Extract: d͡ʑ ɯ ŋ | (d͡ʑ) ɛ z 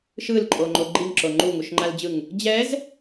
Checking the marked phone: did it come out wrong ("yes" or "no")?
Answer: no